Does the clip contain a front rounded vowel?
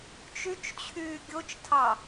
yes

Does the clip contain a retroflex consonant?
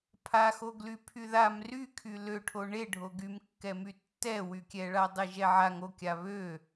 yes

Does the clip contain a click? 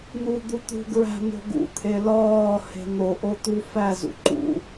yes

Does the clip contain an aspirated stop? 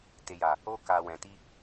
no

